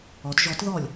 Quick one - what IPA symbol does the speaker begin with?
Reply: ɔ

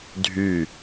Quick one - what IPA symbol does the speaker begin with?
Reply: dʱ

